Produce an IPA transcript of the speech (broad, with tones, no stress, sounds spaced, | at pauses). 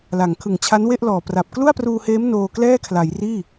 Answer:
l a˩˦ ŋ kʰ ɯ˨˩ ŋ t͡ɕʰ a˦˥ n w e˥˩ ʔ l ɔː˨˩ p r a˨˩ p̚ k l u˥˩ a̯ p r uː˧ h eː˦˥ m n oː˧ k l ɛː˥˩ kʰ l a˩˦ j r iː˥˩